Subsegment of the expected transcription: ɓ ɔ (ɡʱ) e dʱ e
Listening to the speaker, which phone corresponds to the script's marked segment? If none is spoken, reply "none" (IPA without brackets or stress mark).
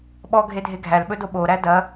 ɡʱ